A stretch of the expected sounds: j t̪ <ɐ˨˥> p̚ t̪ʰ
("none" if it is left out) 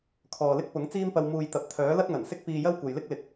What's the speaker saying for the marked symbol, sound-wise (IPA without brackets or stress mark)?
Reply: ɐ˨˥